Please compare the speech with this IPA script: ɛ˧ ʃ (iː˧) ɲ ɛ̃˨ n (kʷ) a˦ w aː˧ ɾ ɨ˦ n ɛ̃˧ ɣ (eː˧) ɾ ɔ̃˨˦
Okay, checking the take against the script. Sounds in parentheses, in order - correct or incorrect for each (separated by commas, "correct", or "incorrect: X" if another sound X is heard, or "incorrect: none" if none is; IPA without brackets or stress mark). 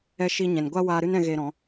incorrect: i˧, incorrect: ɡʷ, correct